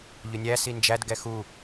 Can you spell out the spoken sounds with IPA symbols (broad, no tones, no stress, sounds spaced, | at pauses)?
ʎ ʊ nʲ æ s i n d͡ʒ æ d ɡ ɛ x u